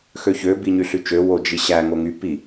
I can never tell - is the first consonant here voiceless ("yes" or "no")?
yes